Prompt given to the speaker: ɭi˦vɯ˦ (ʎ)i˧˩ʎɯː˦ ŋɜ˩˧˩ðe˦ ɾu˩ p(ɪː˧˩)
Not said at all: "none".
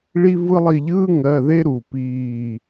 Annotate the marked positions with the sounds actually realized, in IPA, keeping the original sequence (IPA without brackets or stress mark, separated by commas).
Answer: lˠ, iː˧˩